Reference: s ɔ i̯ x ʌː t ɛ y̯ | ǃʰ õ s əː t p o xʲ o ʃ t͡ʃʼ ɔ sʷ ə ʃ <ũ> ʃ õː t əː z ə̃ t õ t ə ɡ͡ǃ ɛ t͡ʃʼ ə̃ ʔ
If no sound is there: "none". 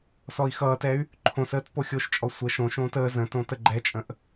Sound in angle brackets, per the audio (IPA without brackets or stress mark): õ